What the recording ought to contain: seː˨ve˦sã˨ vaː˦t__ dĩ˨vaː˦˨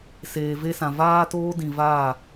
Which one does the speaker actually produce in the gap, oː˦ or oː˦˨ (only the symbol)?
oː˦